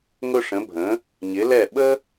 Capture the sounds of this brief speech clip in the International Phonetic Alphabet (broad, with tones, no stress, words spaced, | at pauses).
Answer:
ŋʊ˧ʂə̃˩˧bʱə̃˩˧ | ɲɪ˩˧lɛ˧˩ ɓə˥